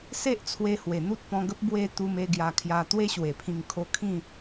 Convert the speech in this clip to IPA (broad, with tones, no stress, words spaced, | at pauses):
se˦ʔt͡sʰwe˧hwe˨˩ n̪u˦t̚pɔ̃˧ɡə˦p̚ bwe˧ t̪u˧me˥˧ ɡja˧kʰja˧ t̪we˦ɕwe˨˩pʰĩ˧ŋ kʰo˧kʰĩ˥˧